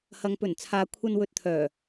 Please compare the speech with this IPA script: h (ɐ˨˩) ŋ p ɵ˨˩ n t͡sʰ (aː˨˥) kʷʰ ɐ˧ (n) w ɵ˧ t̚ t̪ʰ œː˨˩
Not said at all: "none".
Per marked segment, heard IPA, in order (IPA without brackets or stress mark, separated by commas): ɐ˨, aː˨˧, n